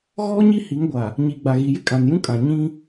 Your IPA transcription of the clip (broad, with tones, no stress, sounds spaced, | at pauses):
ɣ ɔ˦ ɲ i˦ h i˨˦ ŋ ɡʷ a˨ | ɲ i˨ ɡ͡b a˨ ɣ i˨ j ɪ˦ kʼ ã˨ n j ũ˦ kʼ ã˨ ɲ ĩ˦